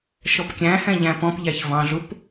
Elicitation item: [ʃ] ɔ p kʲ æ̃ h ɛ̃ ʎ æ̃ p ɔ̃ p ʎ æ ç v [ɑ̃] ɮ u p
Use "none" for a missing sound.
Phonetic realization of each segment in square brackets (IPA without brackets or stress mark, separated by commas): ʃ, ɑ̃